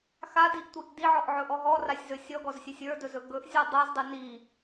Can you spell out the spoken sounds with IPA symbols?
xadiʔtʷiʔ diʕɔʔʕɵʔɔ ɦɔrasʲzɵ sʲɔɡɔzsʲɵsʲ ə˞dɵzɵ ɡɵʔzʲɔ dˤazdˤɨ ni

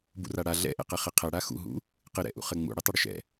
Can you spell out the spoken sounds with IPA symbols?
bṵraɽa ɮɛ̰ʔɛ̰qɛ χɪqʰɛ ɽaxṵɦṵ | qɪɾɛ̰ʔṵχɘ ŋ͡mṵɽɪ tˤɘɽʏʃɛ̰

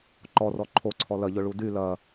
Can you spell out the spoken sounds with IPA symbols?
ǃɔrɔ ǃʰoǀʰɔ lɐʎʊɭu dy lɐ

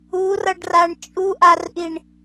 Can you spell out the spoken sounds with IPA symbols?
urʌɖraɳ t͡ʃʼuʔarʔiɳ

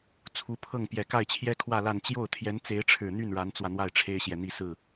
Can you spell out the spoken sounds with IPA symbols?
t͡sʰu˧˥pʰɤ˥˩ŋ pjɛ˨˩ka˥˩ɪ̯t͡ɕʰjɛ˥kʰwä˥˧ la˥˧n t͡ɕjo˥˩ʊ̯t̪ʰjɛ˧˥nt͡se˧˥ɪ̯ ʈ͡ʂʰɻ̩˨˩n̪y˥˩n ɻa˧˥nt͡swä˧n̪wa˥˩ɪ̯ ʈ͡ʂʰe˥ɪ̯ɕjɛ˨n̪i˥˧ sɹ̩˥˩

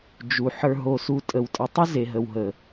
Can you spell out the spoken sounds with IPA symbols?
d͡ʒu˨ ħə˞˨ɦo˨su˨ tʼə˨wtʼə˨tˤə˦ ze˨ɦə˨wɦə˨

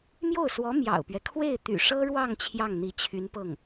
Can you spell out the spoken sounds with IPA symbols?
mjo˥˩ʊ̯swɔ˧˥ mjɑ̰˨˩ʊ̯pɥɛ˦ kʰwe˥˩ɪ̯t̪y̰˨˩ʂɤ˥ɻwɑ˥˧ŋ t͡ɕʰjɑ˥˩ŋn̪i˧˥t͡ɕʰy˧˥npɤ˥˩ŋ

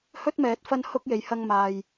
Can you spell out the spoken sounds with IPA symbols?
hɵ˥t̚mɛː˨˥t̚ fɐ˥nhʊ˥k̚je˨˥j hɐ˧ŋmaː˨j

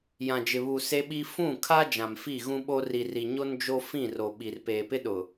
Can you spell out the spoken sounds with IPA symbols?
jã˨d͡ʒɪ˨βu˨ se˦ɓi˦ fũ˦˨kʰa˦ d͡ʒã˨m fi˦˨ɣũ˦ɓo˦ ri˨ri˨ɲo˦n d͡ʒo˦fĩ˦˨ro˨ ɓi˨r peː˨pɪ˦ɗʊ˨

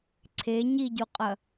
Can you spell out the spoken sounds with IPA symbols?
ǀʰe ɲiɟuqʼɐ

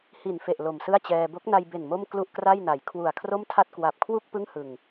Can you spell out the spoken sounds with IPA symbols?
hi˨˩nfe˨˩ʔ lo˨˩msɯ˥˩a̯t͡ɕɛː˧ bo˦˥k̚na˧jbe˨˩n mo˥˩mklu˥˩ʔkra˥˩jna˩˦j kʰwu˨˩a̯kʰro˥˩mtʰa˥˩t̚ kwa˨˩p̚kʰwu˥˩k̚ pɯ˥˩ŋhɯ˨˩ŋ

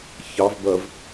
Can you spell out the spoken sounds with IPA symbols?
çɑvbɜv

